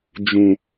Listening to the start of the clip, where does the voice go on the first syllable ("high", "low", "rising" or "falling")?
low